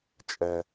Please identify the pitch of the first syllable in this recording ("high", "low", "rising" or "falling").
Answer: low